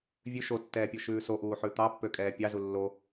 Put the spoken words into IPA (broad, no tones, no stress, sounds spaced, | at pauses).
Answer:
vʲ ʉ ʃ o tː ɛː pʲ o ʃ ʉː s o ʔ uː ħ ʉ t̪ ɑ pː ø kʼ ɛː pʲ ɑ z u lː o